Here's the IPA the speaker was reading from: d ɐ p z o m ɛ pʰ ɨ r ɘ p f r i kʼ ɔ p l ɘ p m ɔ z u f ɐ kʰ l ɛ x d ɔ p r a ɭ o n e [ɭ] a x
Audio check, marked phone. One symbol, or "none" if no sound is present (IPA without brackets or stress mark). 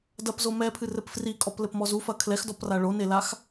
l